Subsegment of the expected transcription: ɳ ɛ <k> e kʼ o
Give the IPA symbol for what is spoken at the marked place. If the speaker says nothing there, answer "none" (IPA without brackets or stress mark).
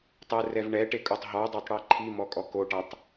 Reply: ʈ